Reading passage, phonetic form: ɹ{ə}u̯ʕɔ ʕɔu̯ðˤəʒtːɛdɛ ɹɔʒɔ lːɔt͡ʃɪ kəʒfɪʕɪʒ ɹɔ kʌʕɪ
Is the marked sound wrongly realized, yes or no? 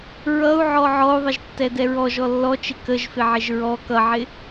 yes